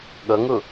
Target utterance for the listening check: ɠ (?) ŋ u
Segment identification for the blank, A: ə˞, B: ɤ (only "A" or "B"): B